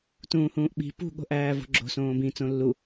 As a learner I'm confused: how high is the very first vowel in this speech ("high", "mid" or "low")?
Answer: high